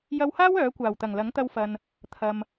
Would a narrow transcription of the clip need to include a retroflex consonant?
no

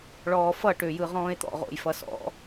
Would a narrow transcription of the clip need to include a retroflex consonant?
yes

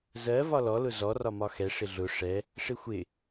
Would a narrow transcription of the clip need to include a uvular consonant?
no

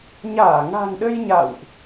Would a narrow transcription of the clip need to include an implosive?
yes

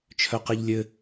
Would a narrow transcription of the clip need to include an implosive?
no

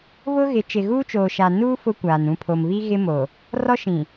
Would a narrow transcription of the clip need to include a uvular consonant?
no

